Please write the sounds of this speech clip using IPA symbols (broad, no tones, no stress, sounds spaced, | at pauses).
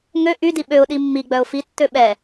ŋ ø ʔ y d i ɓ ø ʊ̯ ɗ i mː i ɡ͡b œ ʊ̯ f i tː ø ɓ ɛ